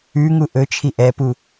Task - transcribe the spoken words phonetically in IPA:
ʉ ŋ u ʔ ɵ t͡ʃʰ i ʔ ɛ p u

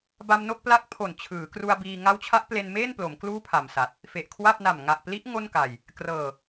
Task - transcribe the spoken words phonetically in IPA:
b a˧ m n o˥˩ k̚ p l a˦˥ k̚ pʰ o˨˩ n t͡ɕʰ ɯː˩˦ k r u˧ a̯ b iː˧ ŋ a˦˥ w t͡ɕʰ a˦˥ ʔ p l e˧ n m eː˥˩ n p l o˩˦ m k l uː˥˩ pʰ a˨˩ m s a˨˩ t̚ | f e˨˩ ʔ kʰ w a˥˩ p̚ n a˨˩ m ŋ a˨˩ ʔ p l i˦˥ ʔ ŋ o˥˩ n k a˨˩ j | k r ɤː˨˩

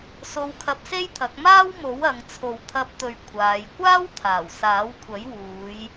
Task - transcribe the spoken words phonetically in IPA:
s o˧ w kʰ ɐ˧ p̚ s e˥ j t̪ʰ ɐ˨˥ k̚ m aː˥ w m o˨˥ w ɐ˨˧ ŋ t͡sʰ o˨ w t̪ʰ ɐ˧ p̚ t̪ ɵ˨ ɥ kʷʰ aː˨˧ j kʷ aː˥ w t̪ʰ aː˨˩ w s aː˨˥ w kʷʰ ɐ˨˥ j w uː˨˧ j

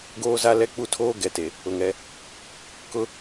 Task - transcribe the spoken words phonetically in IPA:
ɡ oː˦ z a˦ l ɛ˦ k͡p u˦ tʰ oː˦ ɡ ɛ˨ t e˨ | ʊ˨ ŋ ɛ˦ | k ʊ˦

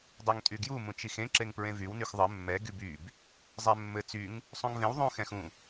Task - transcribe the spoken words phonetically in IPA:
dˤ u ŋ tʼ y ɡ j u m ũ t͡ʃ i x ẽ ǁ e ŋ p ɹ ẽ v y w n y x ðˤ ɘ mː ɛ ɡ y b y b | zˤ ɛ mː ɘ t͡s y ŋ | sˤ ũ ŋ v ẽ w ðˤ ũ x ɛ̃ x ũ

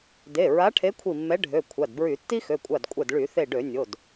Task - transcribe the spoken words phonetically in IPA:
d e˩˧˩ ɹ a˨˥ ʈʰ e˨˥ kʷʰ i˧˩ mː ɛ˨˥ ɖʱ ø˩˧˩ kʷʰ a˩˧˩ d b ɹ y˧˩˧ tː i˦ x ø˩˧˩ kʷʼ a˧˩ d kʷʼ ɛ˧˩ d ɭ y˧˩˧ θ e˧˩ ɖ ø˧˩˧ nʲ o˩˧˩ d

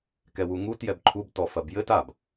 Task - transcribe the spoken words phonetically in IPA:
k ɛ w u ŋ u t j ɛ b ǃʰ u b t ɔ f ɐ b j ɘ t a b

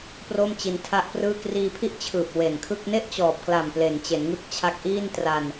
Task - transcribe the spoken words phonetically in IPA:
p r o˥˩ m t͡ɕ i˧ n tʰ a˥˩ ʔ p r ɯː˥˩ k r iː˧ pʰ i˥˩ ʔ t͡ɕʰ ɯː˨˩ p̚ w e˨˩ n kʰ ɯ˥˩ k̚ n e˥˩ ʔ t͡ɕ ɔː˨˩ p̚ k l a˨˩ m p l e˩˦ n t͡ɕ e˩˦ n ŋ ɯ˦˥ k̚ t͡ɕʰ a˦˥ k̚ ʔ i˥˩ n t r a˧ n

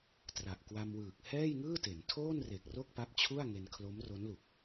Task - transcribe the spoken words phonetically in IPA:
t r a˨˩ ʔ k w a˧ m w ɯː˨˩ k̚ h ɛː˥˩ j ŋ ɯː˥˩ t e˩˦ n tʰ oː˥˩ n r e˨˩ k̚ r o˥˩ k̚ p a˦˥ p̚ t͡ɕʰ u˥˩ a̯ ŋ e˧ n kʰ l o˦˥ m r o˦˥ n l u˨˩ k̚

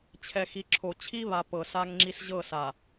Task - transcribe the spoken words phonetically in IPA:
t͡ɕʰ ɛ˨ x i˨ ǁʰ o˨ t͡ɕʰ i˦ β a˨ p ɤ˨ s a˦ ŋ ŋ͡ǁ i˦ s ʑ ɤ˦˨ s a˨

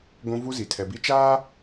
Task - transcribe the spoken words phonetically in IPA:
ɡʷ ũ˦ v u˦ z i˨ tʰ ɛ˨ b i˦ t͡ʃ aː˦

